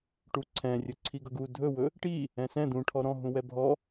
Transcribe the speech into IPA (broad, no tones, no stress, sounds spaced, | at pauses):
ʈ u ǀʰ ɛ̃ rʲ ɵ ǀʰ i ɡ ʌ ɡ u dʱ ɵ w ɵ | ʈ i | ɛ̃ s ɛ̃ d̪ ũ ʈʰ ɔ ɾ ɔ̃ ɦ ũ w ɛ bʱ ɔ